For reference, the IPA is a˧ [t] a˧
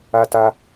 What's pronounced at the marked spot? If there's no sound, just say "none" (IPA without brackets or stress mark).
t